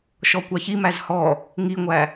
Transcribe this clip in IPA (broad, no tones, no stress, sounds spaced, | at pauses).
ʃ ɔ kʷ ɑ ç i m æ z h ɔ | ŋ i ŋʷ æ